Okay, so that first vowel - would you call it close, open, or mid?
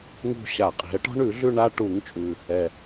close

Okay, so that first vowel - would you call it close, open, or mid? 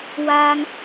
open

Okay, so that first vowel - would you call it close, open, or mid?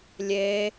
mid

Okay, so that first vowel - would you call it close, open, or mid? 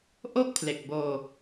mid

